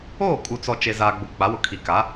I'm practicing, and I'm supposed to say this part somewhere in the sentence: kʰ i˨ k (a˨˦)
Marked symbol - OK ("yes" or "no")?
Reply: yes